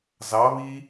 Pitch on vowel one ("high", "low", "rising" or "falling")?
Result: rising